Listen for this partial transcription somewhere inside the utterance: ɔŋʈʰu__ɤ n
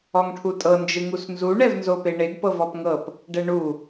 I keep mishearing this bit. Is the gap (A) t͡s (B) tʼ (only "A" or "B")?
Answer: B